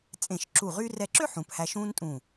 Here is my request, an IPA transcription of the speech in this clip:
t͡sʼẽ˧˩ʃǁu˧˩ʁy˥ rɛ˧ǁø˥ ħũ˩˧phæ˧ʃũː˥ntʼũː˧˩

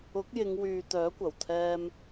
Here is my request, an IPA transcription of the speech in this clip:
ʊ˨˥k̚jɪ˨˧ŋwyː˨ t̪œː˨˥kʷɐ˨˩wt̪ʰɛː˧m

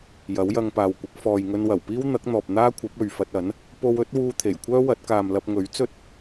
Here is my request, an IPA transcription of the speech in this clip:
jɐ˨˥wjɐ˧ŋpaː˨wkʷɪ˨˥k̚ fɔː˨j ŋɵ˧nwɐ˨˩wpiː˥w n̪ɐ˨˥k̚n̪ɔː˨p̚ n̪aː˥kʷʰɐ˨˥p̚ɵ˨ɥ fɐ˧t̚ɐ˨˥n | po˧wɵ˨˥t̚wuː˧ t̪ʰe˨˩jkʷʰœː˥wɐ˨˥t̚ kaː˨mlɐ˧p̚ŋɵ˨˥ɥt͡sɵ˥t̚

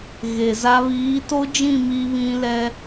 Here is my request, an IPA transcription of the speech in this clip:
ɣe˨za˦ βiː˨˦to˦d͡ʒĩ˦˨ mi˦βĩ˦ lɛ˦

